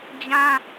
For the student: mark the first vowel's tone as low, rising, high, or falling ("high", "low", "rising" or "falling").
high